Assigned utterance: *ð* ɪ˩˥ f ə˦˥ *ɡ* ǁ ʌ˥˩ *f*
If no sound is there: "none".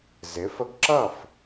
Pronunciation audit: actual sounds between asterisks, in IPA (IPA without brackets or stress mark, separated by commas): z, ɡ, f